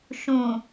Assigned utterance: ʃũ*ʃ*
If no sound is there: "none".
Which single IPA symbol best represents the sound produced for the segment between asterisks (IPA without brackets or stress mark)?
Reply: none